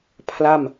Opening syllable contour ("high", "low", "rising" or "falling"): falling